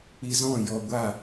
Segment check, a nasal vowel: present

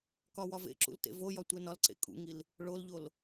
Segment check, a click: present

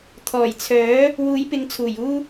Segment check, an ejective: absent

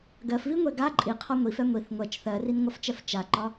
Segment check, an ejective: present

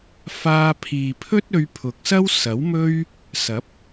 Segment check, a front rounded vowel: absent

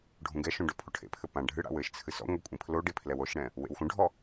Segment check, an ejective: present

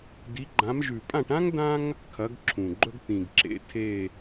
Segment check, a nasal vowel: present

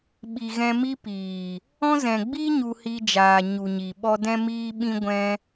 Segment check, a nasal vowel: present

